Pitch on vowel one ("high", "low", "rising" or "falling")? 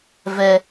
high